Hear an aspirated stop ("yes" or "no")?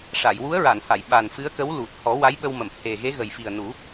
no